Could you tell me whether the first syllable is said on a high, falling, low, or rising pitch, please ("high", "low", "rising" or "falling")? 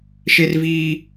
high